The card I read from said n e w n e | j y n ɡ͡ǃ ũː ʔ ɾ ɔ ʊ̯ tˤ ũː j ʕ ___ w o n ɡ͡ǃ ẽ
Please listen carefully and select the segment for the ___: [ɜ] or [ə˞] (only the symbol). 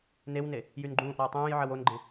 ɜ